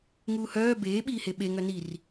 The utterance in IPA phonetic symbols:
ŋuːhœː beː ɓiːheɓe ŋœnir

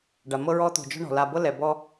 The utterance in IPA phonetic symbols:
ɖa˩ mɤ˦ɹɔ˦t̪o̤˨ d͡ʒɔ̤˦ɳɔ̤˩la˨bɤ˥ lɛ˨bɔ˦

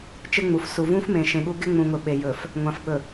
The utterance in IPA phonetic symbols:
t͡ʃɪ˦ŋ͡mu˨f su˨vũ˦fmẽ˨ ʃẽ˨ɠu˦ ɡɪ˦ŋ͡mũ˨ŋʊ˨ ɓe˨ jɵ˨f | ŋʷã˨fɓɵ˨

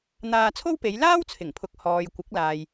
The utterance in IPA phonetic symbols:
n̪aː˧t͡sʰo˥wpe˨˧j laː˥wt͡sʰɪ˨˩ŋpʰʊ˨k̚ hɔː˨jkʷɪ˨˥k̚laː˨j

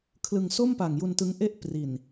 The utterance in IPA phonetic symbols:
kʰlɯ˧ŋ so˥˩mpa˨˩ŋ ju˧ntɯ˦˥ŋʔe˥˩ʔ pri˨˩n

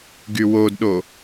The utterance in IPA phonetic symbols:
ɡywodɗo

